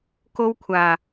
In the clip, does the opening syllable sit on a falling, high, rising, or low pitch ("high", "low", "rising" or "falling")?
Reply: high